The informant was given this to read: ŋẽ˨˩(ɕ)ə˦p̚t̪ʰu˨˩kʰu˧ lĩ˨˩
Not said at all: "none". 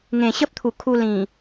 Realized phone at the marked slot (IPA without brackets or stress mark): ɕ